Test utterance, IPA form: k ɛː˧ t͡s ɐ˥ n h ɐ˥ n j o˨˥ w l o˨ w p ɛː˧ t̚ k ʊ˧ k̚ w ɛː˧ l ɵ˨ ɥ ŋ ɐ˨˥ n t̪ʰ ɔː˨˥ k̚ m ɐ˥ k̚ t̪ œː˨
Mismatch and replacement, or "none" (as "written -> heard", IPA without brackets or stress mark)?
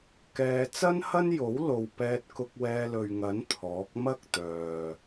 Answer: none